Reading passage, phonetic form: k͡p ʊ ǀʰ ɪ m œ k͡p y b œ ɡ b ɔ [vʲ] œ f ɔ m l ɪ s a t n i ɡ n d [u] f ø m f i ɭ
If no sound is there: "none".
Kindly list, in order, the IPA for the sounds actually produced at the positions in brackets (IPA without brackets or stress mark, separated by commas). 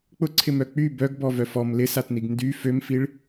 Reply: v, y